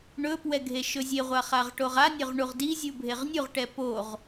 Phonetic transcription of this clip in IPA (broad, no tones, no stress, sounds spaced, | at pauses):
ɳ ɵ p w ɛ ɡʱ e ʃ ɵ zʲ e ʁʷ a χ a ʁ ʈ o ʁ a nʲ ɵ ʁ ɳ u ʁ d i zʲ u bʱ e ʁ nʲ u ʁ ʈ ɛ p o ʁ